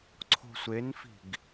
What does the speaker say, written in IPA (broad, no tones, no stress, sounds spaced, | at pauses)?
ǀʰ o̤ sʷ e n f i̤ ɡ